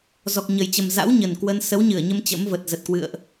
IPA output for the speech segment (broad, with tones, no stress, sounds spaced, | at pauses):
z ɔ˨˩ k̚ ɲ ə˨˩ j t͡ɕ ə˨˩ m z a̰˧˥ w ɲ ə˨˩ n k w ə˧ n s ə˨˦ w ɲ ɨ˧˩ ə̯ ɲ ə˧ m t͡ɕ ə̰˧˥ m v ə˨˩ t̚ z ə˨˩ t̚ k w ɨ̰˧˨ ə̯ ʔ